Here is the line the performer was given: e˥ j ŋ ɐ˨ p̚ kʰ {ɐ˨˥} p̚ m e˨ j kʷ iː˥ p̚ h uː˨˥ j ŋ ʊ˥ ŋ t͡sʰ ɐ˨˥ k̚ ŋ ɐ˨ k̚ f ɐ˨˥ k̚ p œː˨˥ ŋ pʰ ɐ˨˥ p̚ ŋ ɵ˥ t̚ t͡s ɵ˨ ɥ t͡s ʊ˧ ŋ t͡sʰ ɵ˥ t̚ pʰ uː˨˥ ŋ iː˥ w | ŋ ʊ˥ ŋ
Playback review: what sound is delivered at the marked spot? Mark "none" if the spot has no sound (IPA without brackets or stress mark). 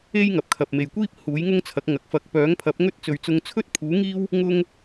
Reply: ɐ˨